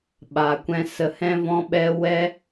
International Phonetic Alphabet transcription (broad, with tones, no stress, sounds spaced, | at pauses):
ɓ a˨ kʷ ɛ̃˨ s ə˨ h ɛ̃˧ v ɔ̃˧ ɓ ɛ˧ w ɛ˦